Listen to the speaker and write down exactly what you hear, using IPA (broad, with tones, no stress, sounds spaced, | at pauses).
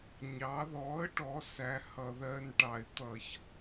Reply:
ɲ ɑ˩˧ ð ɔ˩˥ ə̯ ʈ ɔ˩˧ s æ˩˥ h ʌ˧˩˧ ð ɜ˧˥˧ n ʈ ɑ˧˩˧ ɪ̯ t̪ ʌ˧˩˧ ç